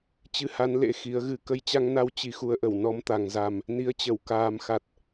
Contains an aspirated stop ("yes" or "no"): no